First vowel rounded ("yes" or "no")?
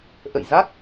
no